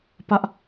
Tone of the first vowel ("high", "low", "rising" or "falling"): high